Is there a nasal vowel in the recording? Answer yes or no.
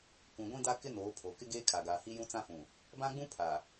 yes